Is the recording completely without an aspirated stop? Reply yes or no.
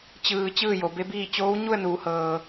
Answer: yes